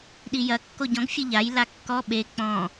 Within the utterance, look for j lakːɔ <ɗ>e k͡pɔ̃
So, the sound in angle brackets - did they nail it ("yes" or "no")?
no